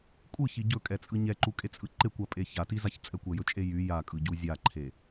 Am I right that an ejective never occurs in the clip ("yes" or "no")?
no